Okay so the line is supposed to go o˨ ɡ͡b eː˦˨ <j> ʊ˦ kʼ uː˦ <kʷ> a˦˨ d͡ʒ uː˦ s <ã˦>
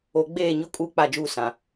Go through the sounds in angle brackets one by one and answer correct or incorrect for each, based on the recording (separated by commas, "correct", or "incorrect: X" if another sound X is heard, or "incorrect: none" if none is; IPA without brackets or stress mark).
incorrect: ɲ, incorrect: k͡p, incorrect: ã˨